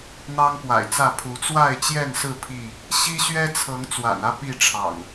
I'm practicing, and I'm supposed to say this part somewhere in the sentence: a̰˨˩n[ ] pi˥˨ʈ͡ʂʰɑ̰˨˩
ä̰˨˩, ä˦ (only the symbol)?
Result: ä˦